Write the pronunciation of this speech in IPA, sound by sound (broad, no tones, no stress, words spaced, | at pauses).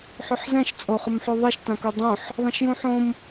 ħʏħzɛ̃ʃ t͡sʼoχʊmħoðˤɛʃ tãkodˤõħ | ðˤɛ̃ʃjũħõm